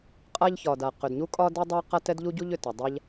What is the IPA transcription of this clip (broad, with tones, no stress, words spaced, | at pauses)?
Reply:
qʼa˥ʎçɒ˩da˩ qʏ˩dɲu˥kʼɒ˥dɛ˥ dˤa˥qa˥ tɛ˥dʎu˥ɟu˥ʎʏ˩ ta˩dˤa˥ʎ